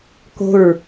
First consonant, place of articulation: velar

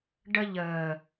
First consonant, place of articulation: retroflex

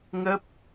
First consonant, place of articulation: velar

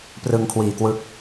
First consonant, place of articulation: labial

